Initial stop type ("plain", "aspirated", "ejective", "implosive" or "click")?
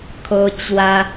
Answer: aspirated